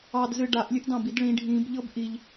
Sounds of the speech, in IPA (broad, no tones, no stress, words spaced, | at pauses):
ɑdzɨ ɖaʔlʲɨʔ dɑ̃bidɭĩ ɖʱĩb ʎɤbʔiʎ